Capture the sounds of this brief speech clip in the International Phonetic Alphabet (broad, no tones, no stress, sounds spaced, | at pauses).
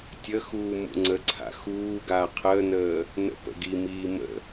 tʲ ə x uː m ṵ ŋ͡ǀ ə ǀʰ a̰ x uː ɡ aː qʰ əː n əː | n ə̰ p ə̰ ɡ i m iː m ə̰